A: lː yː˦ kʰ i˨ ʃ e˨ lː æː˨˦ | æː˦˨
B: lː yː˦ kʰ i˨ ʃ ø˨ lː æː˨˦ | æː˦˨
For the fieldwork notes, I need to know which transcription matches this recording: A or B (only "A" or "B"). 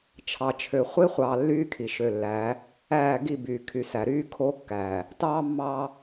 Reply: B